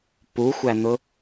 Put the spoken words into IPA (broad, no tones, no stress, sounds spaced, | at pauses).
p u xʷ æ n̪ ʊ